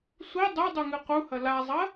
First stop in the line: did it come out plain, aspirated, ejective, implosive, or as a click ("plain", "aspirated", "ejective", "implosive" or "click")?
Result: plain